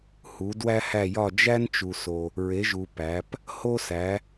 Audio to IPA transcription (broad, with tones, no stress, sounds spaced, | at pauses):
h u˨˦ d w æ˥ h æ˥˧ j ɒ˥˧ d͡ʒ æ˥ n t͡ʃ u˨ s o˨ | ɹ e˨˦ ʒ u˨ p æ˨˦ p | h o˥ s æ˨˦